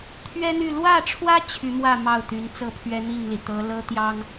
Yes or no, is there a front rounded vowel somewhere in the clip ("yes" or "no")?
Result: yes